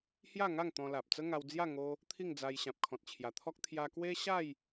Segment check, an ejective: absent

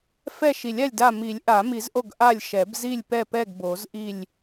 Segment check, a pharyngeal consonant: absent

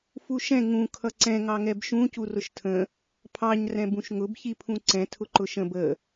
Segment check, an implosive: absent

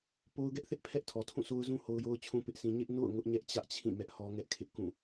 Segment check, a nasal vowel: present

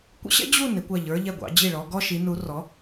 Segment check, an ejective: absent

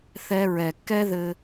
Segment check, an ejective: absent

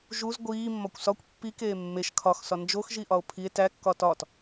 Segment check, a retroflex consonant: absent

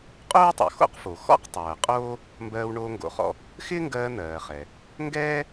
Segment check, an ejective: present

